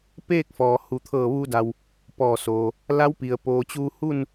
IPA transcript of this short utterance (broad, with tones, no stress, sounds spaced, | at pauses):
p eː˥˨ k̚ f ɔː˩ h u˩ t̪ʰ ɤː˧˩ ʋ uː˧ d a˩ w | p ɔː˧˩ s oː˩ | l a˧˥ w p i˩ ə̯ p oː˩ t͡ɕ uː˧ h u˥˨ n